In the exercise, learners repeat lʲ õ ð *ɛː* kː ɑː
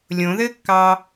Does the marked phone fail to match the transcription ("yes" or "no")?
yes